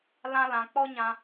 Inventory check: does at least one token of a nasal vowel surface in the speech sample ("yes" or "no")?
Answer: yes